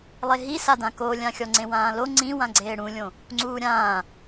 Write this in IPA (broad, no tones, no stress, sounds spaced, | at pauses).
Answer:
lˠ e ɦ i s a d ã k o lʲ ã xʲ ɔ ŋ͡ǀ ẽ w ãː l o ŋ͡ǀ ĩ w ã ɡ͡ǀ eː ɽ ũ lʲ õ | ŋ͡ǀ uː ɾʲ ãː